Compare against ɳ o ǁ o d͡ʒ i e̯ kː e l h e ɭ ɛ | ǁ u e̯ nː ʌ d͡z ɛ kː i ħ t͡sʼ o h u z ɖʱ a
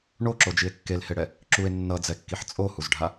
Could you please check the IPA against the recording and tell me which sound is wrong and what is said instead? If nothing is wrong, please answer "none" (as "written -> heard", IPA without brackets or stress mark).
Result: ɭ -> ɽ